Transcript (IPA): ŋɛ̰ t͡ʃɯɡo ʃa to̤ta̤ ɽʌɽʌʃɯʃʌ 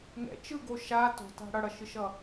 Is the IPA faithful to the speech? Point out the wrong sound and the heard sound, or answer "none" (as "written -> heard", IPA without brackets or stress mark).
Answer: none